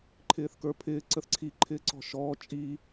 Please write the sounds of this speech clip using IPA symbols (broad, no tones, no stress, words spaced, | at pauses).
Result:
ǃʰɪːθkə˞pʰɪː ǀəθǀʰi ǃʰɪːǀɔ̤ʃɔː t͡ʃʼi